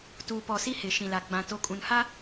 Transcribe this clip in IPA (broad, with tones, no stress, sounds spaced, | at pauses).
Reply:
t uː˨ p ɔ˨ s i˦ h ɪ˨ ʃ ĩ˨ l a˨ ɡ͡b ã˨ t o˨˦ kʼ ũ˨ n h a˦